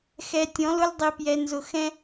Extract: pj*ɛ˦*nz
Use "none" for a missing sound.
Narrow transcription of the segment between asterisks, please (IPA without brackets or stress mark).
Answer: ɛ˨